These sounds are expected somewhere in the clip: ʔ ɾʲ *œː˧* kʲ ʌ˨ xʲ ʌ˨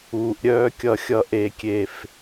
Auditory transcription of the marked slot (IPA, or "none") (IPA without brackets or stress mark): œː˧